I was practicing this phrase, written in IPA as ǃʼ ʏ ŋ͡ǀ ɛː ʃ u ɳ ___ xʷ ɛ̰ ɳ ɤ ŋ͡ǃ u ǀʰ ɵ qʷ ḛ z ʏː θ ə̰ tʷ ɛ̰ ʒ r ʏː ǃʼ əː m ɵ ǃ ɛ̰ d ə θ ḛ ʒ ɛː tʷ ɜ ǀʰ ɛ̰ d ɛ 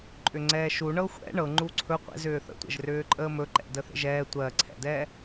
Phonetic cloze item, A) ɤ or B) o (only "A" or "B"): A